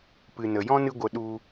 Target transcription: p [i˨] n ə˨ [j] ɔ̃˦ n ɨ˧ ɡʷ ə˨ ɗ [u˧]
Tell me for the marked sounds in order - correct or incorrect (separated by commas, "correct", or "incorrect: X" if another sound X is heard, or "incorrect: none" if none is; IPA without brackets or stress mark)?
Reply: incorrect: ɨ˨, correct, correct